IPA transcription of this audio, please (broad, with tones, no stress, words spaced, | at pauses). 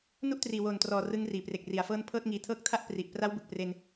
nu˥˩ʔtriː˨˩woː˨˩ntrɔː˨˩ rɯ˦˥ŋriː˩˦pre˨˩k̚ ri˨˩a̯fɤː˥˩n pʰɤː˥˩t̚ŋiː˧ tʰɤː˦˥k̚tʰa˥˩ʔ pri˨˩ʔ pra˦˥wbɯ˨˩k̚pre˧n